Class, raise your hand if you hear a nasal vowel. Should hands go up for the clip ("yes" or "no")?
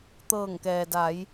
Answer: no